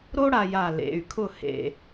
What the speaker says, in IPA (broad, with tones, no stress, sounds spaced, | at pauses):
ɾ o˥ ɽ a˧ j a˧˩ l ḛ˩˧˩ y̯ kʰ ʊ˥˩ h ḛ˧